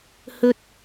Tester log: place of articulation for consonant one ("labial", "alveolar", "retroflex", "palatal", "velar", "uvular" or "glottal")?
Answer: glottal